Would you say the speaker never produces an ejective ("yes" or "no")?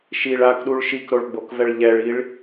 yes